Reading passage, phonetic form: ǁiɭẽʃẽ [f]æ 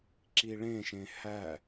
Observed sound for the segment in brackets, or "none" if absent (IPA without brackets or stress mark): h